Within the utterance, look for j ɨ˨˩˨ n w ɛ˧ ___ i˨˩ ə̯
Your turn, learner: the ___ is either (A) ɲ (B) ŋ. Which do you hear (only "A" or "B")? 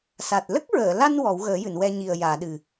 A